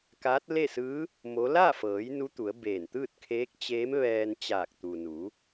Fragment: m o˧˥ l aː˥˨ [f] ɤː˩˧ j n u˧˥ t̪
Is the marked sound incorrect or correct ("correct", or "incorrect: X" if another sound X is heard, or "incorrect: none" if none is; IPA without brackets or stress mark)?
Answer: correct